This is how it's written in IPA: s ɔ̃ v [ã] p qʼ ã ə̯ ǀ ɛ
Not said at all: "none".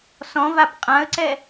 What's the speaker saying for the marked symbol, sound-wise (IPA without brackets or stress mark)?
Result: a